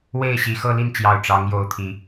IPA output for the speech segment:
we˥˨ɪ̯ɕi˨˩ xɤ˥˨li˥˨nt͡ɕjɑ˨˩ʊ̯ ʈ͡ʂɑ˨˦ŋ jo˥˨ʊ̯t̪ʰi˨˦

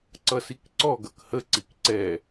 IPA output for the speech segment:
ǀʌsikǀɔ ɡʌkhə ǀikǀɛ

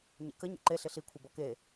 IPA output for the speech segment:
ɲḛkə ɲḛǃe ɬɪɬi kʷʰebɔke

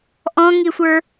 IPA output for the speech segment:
ʔɔ̃ŋisʷə˞

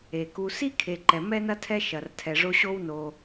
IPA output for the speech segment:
e˨ku˧ si˦kʰe˨ǃɛ˨ mɛ˦nɐ˦tʰɛ˦ ʃɐ˧rtʰɛ˧ʐo˦ ɕo˦wno˧

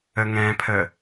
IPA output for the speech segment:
əŋɛ̃pʰə

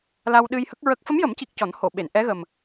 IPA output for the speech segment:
la˧wɗɨ˧j hə˦˥k̚ɹə˦˥k̚ fə˧˥mjə˨˩˦mci˨˩k̚ cɔ˨˩˦nho˨˩˨ɓe˨˩˨n ʔɛ˧˥ɣə˨˩m

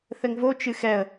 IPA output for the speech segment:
θɘŋvo t͡ʃɨxɛə̯

